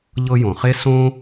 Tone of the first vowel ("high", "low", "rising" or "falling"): high